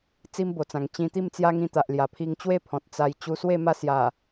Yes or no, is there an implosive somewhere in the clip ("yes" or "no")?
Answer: no